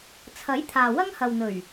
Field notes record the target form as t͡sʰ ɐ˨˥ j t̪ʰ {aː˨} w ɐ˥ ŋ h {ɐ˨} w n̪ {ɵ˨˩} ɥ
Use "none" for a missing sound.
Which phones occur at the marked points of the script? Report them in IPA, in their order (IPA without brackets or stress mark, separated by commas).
aː˨, ɐ˨, ɵ˨˩